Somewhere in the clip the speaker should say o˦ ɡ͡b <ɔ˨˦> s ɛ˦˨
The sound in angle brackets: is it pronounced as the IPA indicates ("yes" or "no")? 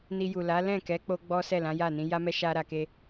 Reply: no